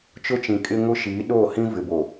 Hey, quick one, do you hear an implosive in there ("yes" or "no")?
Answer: yes